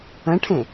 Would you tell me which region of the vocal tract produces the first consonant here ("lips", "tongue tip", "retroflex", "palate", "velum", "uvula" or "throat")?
retroflex